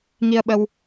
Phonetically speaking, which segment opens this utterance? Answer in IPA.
ŋ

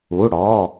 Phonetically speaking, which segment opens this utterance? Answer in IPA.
u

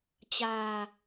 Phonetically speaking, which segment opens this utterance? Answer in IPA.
t͡ɕ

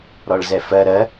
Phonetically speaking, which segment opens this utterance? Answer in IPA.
ɾ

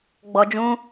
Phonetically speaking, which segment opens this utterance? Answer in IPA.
ɡ͡b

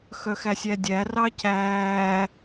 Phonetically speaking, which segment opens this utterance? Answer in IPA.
x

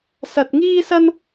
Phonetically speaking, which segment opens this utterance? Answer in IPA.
s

